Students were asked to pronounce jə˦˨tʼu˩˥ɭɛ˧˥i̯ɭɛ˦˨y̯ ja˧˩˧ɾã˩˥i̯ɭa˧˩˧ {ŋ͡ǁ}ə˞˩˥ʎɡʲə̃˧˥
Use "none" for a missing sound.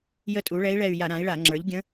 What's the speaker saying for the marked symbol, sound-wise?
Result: ŋ͡ǁ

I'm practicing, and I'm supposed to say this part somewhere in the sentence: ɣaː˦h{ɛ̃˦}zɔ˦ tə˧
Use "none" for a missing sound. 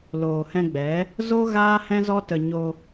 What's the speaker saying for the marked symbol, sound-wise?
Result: ɛ̃˦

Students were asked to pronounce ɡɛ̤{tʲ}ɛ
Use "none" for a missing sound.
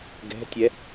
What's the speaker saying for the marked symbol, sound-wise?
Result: tʲ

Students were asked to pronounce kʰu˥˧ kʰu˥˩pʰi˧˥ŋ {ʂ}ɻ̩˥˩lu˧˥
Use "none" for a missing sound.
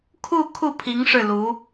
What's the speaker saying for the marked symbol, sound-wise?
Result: ʂ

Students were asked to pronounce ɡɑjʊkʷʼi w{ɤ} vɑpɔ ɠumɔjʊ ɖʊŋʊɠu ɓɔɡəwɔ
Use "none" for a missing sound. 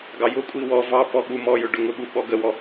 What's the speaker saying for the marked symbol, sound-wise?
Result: ɔ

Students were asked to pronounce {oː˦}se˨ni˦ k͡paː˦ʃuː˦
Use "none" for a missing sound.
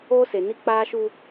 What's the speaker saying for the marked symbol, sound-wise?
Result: oː˦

